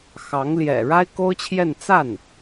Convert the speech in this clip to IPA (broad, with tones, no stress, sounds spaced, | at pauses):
x ɑ˧˥ ŋ l j ɛ̰˨˩ ɻ a˥ ɪ̯ k o˥ ʊ̯ t͡ɕʰ j ɛ˥˧ n t͡s a˥˩ n